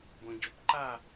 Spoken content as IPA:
bõɟopǃa

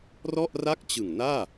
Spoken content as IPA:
rɔ˥˩ʔra˥˩k̚t͡ɕɯ˨˩ŋnaː˥˩

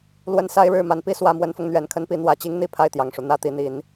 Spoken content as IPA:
lwə˨˦nsa˨˦ɪ̯ɻɻ̩˨˩ ma˨˦npi˥˨ swä˨˦mwə˨˦nfʊ˧ŋ n̪ɥɛ˨˦nkʰə˦npi˨˦ n̪wä˨˦ t͡ɕi˦ŋn̪i˥˨ pʰa˥˨ɪ̯t̪jɑ˨˩ŋʂu˦ n̪ä˥˨t̪i˨˦n̪i˨˦n

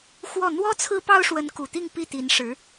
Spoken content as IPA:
xwɔ˥˩ n̪wɔ˥ t͡sʰɹ̩˥pɑ˥ʊ̯ʂwə˧˥n ku˨˩t̪i˥˧ŋ pi˥˩t̪i˧˥nʂɻ̩˧˥

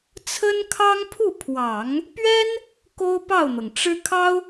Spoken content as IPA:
t͡sʰə˥nkʰɑ˥ŋ pʰu˥˩pʰwɑ˨˩˦ŋ | pɥɛ˥n | ko˥ʊ̯pɑ˥˩ʊ̯n̪ɤ˩ŋ ʈ͡ʂɻ̩˥ kʰɑ˥ʊ̯

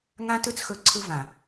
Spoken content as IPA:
ŋã˦tɯ˦t͡sxɵ˨˦ ǀʰɯ˧vã˨

